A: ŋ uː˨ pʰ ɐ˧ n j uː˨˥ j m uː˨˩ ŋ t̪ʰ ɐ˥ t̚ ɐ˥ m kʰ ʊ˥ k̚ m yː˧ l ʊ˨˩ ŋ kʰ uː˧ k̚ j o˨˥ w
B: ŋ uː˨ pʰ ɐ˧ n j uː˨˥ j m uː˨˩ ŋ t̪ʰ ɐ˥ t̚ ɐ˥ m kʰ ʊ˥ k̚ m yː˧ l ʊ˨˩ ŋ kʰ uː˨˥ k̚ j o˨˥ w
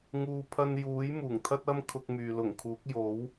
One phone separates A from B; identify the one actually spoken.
B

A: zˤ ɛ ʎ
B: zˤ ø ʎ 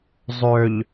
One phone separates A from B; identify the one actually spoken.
B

